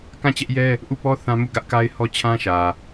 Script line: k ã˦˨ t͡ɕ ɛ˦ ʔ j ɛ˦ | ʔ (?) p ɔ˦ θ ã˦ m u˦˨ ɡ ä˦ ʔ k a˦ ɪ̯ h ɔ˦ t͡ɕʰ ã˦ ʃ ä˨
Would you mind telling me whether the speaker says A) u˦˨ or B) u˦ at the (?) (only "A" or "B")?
A